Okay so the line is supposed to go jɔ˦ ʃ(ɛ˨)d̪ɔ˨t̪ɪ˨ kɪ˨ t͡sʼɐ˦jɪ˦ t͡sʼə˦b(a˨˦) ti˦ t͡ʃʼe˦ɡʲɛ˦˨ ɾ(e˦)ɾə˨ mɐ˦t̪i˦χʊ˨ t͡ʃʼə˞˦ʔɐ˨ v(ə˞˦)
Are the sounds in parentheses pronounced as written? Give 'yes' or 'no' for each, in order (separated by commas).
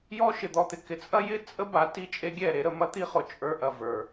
no, yes, no, no